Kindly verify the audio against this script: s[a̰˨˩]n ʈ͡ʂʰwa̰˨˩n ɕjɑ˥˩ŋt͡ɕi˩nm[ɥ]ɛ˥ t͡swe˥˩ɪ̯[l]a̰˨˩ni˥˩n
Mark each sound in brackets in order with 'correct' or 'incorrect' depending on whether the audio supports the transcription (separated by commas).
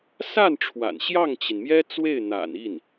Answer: incorrect, incorrect, incorrect